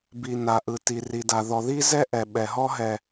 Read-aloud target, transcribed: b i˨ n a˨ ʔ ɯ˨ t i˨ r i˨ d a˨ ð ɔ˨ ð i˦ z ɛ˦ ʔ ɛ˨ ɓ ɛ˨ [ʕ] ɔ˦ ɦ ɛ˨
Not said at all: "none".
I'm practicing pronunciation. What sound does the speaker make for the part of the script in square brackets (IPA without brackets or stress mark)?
ɦ